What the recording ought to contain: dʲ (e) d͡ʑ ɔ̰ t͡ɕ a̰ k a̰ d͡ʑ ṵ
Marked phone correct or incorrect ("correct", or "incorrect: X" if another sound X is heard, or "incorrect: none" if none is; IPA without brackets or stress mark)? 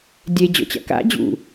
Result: correct